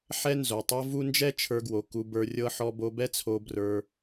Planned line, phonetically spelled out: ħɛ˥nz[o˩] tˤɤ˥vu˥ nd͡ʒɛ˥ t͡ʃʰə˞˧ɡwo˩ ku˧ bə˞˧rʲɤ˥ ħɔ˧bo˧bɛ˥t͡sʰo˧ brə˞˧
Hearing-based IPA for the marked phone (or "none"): o˩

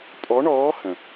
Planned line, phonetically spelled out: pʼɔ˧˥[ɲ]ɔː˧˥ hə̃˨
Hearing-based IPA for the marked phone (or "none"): ɳ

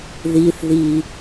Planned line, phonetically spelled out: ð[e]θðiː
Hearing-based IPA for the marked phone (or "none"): i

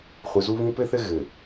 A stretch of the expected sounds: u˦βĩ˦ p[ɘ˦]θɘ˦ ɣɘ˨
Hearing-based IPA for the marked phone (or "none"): ɘ˦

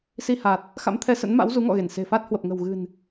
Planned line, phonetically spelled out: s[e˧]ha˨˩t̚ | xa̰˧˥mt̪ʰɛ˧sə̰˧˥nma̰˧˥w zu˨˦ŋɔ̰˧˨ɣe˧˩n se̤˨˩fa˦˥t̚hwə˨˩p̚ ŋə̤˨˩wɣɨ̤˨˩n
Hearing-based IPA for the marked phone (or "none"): i˧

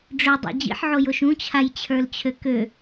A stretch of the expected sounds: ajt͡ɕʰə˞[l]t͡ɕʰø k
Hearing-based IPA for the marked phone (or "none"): l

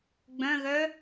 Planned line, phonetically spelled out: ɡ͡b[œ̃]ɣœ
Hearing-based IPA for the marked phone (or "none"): œ̃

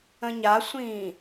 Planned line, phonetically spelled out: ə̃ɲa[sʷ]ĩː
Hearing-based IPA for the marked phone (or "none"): sʷ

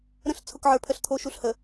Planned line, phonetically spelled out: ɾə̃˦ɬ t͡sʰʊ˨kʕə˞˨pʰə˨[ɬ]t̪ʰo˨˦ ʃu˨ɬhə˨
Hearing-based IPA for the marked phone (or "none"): ɬ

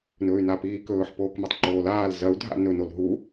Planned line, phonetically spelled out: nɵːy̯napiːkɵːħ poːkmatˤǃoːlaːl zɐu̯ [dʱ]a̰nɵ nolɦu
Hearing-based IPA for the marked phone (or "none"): dʱ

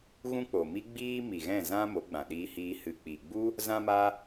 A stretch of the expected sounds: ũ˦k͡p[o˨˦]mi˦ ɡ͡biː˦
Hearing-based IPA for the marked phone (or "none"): o˨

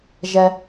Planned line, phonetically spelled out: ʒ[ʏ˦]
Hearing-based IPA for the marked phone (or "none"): ɛ˦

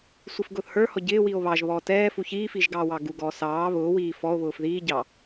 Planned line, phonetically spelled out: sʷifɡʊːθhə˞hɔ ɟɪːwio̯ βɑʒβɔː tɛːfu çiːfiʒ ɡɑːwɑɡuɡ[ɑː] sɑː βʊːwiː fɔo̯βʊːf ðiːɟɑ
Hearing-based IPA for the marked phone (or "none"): ɔː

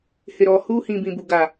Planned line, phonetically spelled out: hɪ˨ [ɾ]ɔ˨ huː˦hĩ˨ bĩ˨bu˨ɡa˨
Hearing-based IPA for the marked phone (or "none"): ɾ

